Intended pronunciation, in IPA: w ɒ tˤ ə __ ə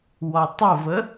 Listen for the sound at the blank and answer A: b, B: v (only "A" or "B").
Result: B